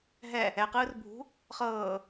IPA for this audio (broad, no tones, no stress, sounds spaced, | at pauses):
ɦ ɛ | ɛ q ɯː r bʱ ṳ | χ ɤː